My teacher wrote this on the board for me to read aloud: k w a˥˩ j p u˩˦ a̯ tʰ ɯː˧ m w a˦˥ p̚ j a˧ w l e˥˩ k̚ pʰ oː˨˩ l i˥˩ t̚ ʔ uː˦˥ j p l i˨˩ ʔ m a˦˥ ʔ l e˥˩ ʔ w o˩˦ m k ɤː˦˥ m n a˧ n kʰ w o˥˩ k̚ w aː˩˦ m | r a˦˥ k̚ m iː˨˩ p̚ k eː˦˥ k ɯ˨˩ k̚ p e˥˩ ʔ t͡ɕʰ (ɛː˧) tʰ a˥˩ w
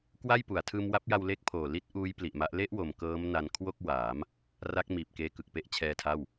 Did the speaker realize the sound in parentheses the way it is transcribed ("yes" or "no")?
yes